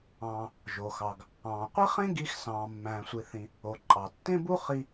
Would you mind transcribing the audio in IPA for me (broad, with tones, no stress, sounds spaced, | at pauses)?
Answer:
ɑ̃ː˩ | ʒ o˩ x ɑ˩ ɡ | ɑ̃ː˩ qʷ i˥ χ ẽ˥ ɡ i˧ x s ɑ̃ː˩ mː æ̃ː˩ sʷ i˩ θ ĩ˩ | o˩ ǃʼ ɑ˩ tː ẽ˥ b u˥ χ i˧